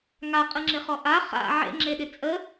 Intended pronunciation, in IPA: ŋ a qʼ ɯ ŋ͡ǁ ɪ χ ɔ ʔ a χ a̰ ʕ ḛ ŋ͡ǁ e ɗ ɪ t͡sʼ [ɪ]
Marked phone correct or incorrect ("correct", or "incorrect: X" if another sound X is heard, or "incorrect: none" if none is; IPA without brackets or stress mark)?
incorrect: ə